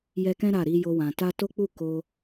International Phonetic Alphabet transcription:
jɛ˧kɛ̃˦ ɾa˦˨ɾi˧jo˧wã˨ ta˧to˦k͡pu˦˨ ko˧

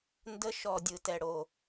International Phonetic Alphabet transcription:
ndə˧˥˧ ʃɔ˨˩ dʲɯ˨˩tɛ˨˩ ɽo˨˩

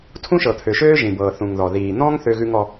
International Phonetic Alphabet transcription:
tʰũ˦ʃɤ˨t̪ʰø˨ʃøː˦ ʒĩ˨bɤː˨ θũ˨ŋðɔ˨ ðiː˨n̪ɔ̃˦ŋ θø˦ɣʉ˦ŋɔ˦

